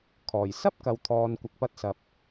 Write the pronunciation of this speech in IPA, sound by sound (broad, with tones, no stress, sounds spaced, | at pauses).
kʰ ɔː˨˩ j s ɐ˥ p̚ k ɐ˨ w t̪ʰ ɔː˨ n kʷ ɐ˨ k̚ p ɐ˧ t̚ s ɐ˨ p̚